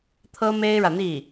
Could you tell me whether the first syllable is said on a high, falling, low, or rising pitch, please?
high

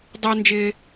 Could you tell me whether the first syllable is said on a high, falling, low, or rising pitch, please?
high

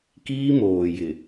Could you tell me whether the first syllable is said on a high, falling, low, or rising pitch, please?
high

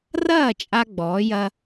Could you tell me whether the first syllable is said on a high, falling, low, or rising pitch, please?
falling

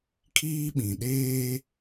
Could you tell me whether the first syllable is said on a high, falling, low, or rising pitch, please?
high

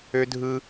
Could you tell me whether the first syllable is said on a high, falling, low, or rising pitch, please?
high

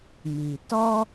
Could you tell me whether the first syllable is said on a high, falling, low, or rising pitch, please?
low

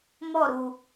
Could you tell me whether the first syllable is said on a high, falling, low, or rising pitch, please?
falling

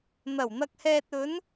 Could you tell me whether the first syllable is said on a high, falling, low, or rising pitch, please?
low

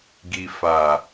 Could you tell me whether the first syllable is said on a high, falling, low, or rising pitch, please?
low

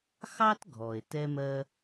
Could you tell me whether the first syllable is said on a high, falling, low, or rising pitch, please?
high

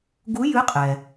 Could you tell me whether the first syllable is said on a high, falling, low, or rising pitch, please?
rising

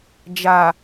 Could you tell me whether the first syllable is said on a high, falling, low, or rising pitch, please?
low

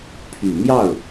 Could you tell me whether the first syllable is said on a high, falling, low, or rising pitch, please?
low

